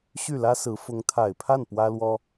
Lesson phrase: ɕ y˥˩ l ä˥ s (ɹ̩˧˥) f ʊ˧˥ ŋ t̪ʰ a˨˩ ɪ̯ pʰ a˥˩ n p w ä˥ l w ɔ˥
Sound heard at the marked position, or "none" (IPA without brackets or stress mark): ɹ̩˧˥